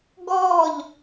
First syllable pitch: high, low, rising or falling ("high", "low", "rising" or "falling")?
falling